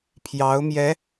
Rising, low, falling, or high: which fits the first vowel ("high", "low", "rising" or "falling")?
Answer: rising